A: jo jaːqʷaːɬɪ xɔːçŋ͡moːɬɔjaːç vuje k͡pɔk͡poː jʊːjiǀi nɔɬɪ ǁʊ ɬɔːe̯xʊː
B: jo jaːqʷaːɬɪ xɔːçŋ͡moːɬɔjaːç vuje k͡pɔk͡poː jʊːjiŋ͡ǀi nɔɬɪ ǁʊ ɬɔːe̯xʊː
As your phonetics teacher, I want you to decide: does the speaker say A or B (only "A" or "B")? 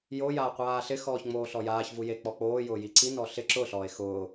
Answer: A